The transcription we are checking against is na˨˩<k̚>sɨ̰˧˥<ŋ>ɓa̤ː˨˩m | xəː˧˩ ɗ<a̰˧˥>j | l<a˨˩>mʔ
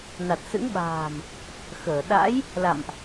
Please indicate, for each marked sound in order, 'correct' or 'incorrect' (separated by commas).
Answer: incorrect, correct, correct, incorrect